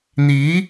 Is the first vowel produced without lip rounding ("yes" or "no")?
yes